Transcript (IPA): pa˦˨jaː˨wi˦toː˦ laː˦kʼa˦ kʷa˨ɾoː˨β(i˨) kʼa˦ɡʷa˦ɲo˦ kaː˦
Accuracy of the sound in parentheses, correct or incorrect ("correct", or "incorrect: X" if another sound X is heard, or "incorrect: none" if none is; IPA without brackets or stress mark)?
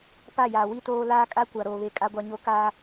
incorrect: e˨